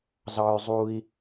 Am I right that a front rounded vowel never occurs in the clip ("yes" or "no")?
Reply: no